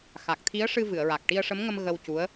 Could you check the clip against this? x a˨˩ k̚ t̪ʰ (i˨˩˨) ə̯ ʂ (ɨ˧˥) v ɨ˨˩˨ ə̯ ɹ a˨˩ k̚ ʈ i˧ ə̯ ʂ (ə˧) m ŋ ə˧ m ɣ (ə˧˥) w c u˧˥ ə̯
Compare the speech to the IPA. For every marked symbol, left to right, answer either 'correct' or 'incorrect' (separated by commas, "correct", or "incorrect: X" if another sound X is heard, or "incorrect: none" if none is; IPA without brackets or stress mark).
incorrect: i˧˥, incorrect: ɨ˧, incorrect: ə˧˥, incorrect: ə˧